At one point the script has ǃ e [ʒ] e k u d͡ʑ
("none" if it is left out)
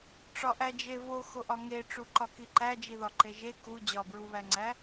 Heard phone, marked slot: ʒ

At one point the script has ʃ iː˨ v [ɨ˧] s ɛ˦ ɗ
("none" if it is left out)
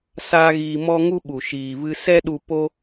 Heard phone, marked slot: ɨ˧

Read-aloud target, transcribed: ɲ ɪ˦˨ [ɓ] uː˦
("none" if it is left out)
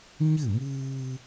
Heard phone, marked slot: m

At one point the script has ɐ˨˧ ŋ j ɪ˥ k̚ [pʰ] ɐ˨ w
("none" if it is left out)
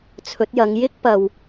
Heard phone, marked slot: p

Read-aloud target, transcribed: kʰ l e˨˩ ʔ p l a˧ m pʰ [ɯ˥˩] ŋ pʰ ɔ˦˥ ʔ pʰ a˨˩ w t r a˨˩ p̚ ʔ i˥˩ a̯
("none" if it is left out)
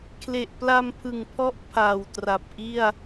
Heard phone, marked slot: ɯ˨˩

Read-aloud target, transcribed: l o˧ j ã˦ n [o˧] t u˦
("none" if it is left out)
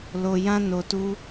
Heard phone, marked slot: o˧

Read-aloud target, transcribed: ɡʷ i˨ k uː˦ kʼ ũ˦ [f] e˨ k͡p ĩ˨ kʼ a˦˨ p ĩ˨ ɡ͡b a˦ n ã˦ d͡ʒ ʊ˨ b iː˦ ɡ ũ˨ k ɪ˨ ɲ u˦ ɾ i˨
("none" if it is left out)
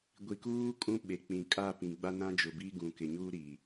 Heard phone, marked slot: ɓ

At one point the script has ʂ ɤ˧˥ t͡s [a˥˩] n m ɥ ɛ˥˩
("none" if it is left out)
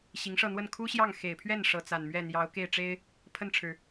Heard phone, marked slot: a˨˩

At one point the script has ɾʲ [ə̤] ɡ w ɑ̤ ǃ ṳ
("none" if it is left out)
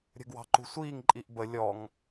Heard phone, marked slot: ə̤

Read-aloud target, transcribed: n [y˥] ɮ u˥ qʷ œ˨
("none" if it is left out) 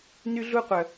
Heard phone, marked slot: y˥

